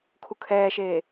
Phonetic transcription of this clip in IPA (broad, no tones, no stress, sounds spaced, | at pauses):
kʰ u kʰ ɛː ʃ eː